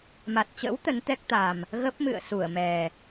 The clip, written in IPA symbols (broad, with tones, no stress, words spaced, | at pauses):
ma˨˩t̚t͡ɕə̰˧˥w t̪ə˨˦nt̪ɛ˦˥k̚t̪a˨˩m | ɣə˦˥p̚mɨ̰˧˨ə̯ su˧˩ə̯mɛ˨˩